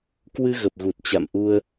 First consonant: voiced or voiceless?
voiceless